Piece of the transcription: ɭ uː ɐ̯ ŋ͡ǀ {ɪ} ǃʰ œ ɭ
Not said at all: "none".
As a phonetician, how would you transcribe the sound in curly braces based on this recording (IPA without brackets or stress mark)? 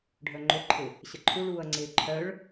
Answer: ɪː